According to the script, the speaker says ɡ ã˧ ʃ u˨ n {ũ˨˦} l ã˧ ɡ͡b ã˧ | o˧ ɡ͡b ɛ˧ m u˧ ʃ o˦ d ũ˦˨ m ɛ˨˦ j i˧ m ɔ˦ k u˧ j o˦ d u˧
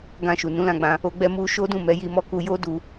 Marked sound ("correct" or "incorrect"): correct